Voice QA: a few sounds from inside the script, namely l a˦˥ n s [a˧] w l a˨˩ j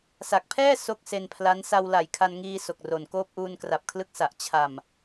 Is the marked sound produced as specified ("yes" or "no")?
yes